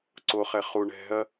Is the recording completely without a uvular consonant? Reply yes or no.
no